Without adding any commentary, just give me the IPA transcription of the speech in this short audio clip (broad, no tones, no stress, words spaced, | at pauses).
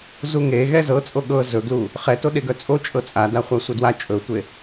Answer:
zuŋeɣɛ zɤt͡sʼo ɠɤ zɵɡlu | χɛto ɗeɡœt͡sʼo t͡ʃʼɤt͡sʼada χʷasʷʌdwa t͡ʃʼɵtʷe